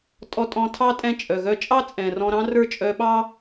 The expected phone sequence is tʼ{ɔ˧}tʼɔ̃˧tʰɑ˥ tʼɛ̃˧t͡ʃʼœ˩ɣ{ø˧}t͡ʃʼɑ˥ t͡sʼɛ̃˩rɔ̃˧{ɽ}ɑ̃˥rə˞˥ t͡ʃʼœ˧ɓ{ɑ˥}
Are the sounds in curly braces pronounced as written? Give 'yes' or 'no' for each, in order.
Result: yes, no, no, yes

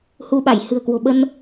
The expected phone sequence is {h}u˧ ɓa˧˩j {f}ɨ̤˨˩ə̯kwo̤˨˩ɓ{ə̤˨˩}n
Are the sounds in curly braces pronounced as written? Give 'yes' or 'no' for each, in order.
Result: yes, no, no

